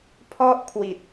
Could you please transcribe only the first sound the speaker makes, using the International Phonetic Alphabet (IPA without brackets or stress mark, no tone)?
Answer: pʰ